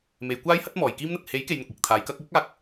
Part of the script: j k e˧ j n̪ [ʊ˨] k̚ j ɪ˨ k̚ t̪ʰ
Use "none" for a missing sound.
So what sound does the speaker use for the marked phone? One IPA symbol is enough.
ʊ˨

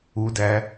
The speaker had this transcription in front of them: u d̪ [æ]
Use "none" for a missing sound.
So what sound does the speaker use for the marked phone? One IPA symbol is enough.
æ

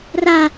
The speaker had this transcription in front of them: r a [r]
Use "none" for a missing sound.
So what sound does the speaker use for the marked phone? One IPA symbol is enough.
none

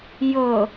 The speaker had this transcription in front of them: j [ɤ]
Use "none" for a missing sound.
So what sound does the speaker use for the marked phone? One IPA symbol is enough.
ɤ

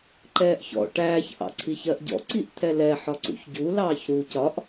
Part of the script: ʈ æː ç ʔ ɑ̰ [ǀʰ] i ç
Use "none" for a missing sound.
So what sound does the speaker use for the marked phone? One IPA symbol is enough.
ǀʰ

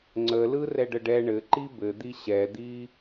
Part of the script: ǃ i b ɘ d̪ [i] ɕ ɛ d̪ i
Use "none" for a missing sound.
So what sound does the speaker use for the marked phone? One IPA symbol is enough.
i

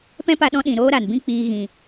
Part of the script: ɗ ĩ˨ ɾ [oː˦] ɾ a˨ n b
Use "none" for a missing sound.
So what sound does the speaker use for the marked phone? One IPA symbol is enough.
oː˦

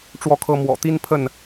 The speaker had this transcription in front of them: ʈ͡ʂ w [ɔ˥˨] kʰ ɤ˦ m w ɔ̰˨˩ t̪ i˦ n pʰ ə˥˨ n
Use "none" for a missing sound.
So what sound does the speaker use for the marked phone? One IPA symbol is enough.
ɔ˥˨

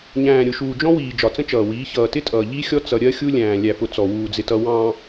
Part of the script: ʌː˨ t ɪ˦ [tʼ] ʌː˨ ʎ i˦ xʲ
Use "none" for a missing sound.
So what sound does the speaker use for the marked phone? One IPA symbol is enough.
tʼ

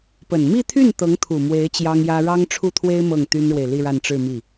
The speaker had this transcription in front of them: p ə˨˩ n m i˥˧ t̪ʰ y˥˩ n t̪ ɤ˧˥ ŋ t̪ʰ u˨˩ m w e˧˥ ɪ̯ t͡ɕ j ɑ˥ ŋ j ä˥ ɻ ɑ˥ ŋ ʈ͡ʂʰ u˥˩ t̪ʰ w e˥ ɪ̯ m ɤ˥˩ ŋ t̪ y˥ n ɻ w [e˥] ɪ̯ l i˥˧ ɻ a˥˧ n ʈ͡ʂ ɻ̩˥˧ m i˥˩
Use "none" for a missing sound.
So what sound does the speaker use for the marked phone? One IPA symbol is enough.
e˨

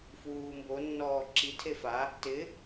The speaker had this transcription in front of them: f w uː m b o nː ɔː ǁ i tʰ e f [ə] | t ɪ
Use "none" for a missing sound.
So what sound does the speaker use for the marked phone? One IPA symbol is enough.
a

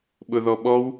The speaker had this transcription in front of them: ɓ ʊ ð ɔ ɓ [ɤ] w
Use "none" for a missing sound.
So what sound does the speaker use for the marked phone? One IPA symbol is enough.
ɔ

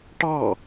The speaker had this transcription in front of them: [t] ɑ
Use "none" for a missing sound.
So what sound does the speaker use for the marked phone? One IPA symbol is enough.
ʈ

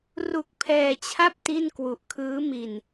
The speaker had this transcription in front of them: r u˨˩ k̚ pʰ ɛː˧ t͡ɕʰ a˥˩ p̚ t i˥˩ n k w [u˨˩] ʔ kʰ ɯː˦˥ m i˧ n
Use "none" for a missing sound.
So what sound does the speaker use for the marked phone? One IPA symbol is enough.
u˨˩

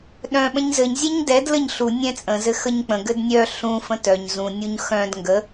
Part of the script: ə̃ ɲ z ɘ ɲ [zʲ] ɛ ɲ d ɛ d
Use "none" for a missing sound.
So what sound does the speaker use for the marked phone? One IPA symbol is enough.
zʲ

